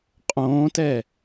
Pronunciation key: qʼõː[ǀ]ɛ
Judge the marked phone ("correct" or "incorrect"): incorrect